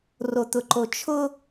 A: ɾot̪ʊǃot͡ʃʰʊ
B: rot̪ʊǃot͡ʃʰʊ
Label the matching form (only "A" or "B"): B